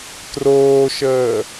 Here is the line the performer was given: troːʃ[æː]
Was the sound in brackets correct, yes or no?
no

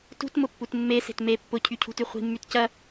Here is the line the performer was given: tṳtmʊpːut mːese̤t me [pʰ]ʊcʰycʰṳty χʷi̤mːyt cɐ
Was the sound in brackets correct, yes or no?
no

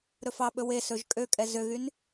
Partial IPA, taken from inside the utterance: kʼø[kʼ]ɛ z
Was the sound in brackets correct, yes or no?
yes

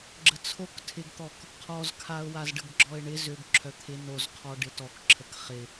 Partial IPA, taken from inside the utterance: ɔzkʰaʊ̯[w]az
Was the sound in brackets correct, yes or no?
yes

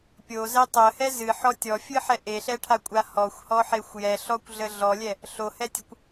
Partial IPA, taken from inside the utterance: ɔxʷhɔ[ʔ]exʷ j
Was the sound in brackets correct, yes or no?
no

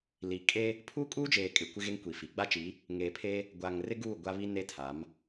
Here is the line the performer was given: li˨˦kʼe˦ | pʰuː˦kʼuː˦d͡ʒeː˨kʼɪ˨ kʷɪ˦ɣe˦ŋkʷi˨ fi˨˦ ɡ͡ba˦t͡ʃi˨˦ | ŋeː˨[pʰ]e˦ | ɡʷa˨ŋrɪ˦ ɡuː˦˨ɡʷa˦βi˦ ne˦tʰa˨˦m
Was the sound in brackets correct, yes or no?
yes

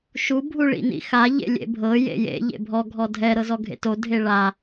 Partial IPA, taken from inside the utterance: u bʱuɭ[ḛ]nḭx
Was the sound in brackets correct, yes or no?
no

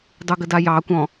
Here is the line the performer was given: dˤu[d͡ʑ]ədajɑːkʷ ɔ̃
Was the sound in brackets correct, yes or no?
no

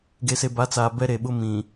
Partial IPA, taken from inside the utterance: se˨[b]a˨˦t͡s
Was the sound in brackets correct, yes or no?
yes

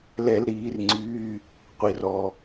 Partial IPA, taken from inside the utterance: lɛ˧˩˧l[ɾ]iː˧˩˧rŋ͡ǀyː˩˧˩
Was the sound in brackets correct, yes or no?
yes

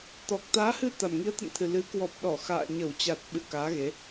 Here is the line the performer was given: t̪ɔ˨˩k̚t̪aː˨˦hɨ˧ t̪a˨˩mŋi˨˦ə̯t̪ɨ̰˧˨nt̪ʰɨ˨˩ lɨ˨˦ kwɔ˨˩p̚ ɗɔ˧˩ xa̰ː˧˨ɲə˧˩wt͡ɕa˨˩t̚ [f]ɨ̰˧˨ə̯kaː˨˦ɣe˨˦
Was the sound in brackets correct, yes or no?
no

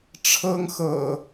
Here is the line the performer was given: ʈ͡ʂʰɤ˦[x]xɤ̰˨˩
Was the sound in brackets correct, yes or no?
no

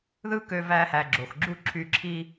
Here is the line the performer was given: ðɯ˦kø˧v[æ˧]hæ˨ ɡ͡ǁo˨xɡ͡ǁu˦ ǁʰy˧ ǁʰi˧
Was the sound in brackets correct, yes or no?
yes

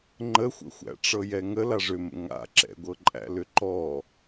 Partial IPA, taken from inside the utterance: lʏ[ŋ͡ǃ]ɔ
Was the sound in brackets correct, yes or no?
no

